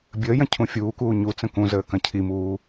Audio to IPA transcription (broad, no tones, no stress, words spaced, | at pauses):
bʲəːjɐ̃ cʰũfʲuːkuː ɲu t͡sə̃kũzəː kɐ̃cʰimuː